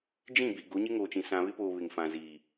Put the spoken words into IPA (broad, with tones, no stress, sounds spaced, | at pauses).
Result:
d͡ʒ ĩ˦˨ b i˨ ɡ o˨˦ ɲ ɪ˦ ŋ oː˨ t͡ʃ ĩ˨ s ã˨ β ɪ˦ p oː˨ β ɪ˨ ŋ f ã˨ z iː˨